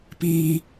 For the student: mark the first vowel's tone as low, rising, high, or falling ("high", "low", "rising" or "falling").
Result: high